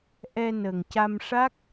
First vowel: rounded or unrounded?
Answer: unrounded